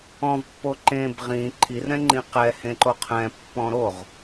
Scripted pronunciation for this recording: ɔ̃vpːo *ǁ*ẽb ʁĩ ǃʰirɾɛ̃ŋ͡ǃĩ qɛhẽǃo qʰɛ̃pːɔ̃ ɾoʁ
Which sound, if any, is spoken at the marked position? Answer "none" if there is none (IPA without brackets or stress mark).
ǃ